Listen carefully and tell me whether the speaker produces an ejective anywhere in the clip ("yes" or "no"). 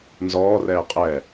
yes